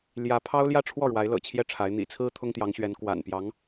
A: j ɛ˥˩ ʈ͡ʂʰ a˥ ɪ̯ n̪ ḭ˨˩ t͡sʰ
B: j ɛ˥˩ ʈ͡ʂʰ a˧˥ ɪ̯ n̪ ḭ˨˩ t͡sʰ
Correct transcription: B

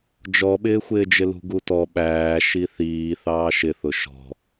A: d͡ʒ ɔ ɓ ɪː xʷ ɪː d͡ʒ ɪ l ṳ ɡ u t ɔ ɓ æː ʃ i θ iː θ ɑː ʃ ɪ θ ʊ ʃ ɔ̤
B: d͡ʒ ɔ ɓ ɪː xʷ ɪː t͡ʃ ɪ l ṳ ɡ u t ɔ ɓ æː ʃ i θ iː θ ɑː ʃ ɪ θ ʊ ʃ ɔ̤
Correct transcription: A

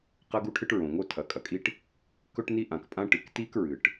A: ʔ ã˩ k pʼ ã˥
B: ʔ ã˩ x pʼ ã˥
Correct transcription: A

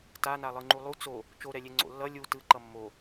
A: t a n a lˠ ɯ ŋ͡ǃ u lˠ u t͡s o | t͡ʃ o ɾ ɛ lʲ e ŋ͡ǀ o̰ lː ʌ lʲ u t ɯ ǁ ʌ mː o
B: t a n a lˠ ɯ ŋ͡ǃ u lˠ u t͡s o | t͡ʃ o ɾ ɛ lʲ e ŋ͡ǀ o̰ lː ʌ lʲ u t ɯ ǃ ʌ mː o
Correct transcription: B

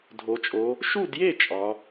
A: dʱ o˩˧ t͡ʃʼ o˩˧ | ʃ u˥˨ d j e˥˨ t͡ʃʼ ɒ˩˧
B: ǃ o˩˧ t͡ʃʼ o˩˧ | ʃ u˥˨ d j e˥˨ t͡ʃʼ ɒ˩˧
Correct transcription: A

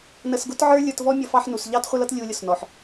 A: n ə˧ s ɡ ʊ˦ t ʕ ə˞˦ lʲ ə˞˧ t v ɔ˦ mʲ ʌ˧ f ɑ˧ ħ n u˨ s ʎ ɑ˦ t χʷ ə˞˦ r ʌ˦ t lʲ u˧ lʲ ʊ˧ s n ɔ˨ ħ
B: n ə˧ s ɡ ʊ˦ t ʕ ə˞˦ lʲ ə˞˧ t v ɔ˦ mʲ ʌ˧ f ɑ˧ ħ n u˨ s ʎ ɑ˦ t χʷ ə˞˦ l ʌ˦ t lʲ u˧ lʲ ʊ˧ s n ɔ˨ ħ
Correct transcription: B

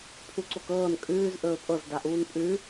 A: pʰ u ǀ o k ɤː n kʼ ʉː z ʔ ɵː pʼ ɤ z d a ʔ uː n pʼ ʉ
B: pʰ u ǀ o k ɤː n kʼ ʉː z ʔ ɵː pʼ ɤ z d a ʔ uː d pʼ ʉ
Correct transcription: A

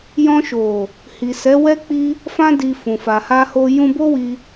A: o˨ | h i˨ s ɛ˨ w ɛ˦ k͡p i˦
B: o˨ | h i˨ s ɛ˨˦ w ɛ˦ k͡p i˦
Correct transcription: B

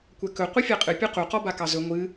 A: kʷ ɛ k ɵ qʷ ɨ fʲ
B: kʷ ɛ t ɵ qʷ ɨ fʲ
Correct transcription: A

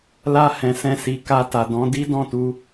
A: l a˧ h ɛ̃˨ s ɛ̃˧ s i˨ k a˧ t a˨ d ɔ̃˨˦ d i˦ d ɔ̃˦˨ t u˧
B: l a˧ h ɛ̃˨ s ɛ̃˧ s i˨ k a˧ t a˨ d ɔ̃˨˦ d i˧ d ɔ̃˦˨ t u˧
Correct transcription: A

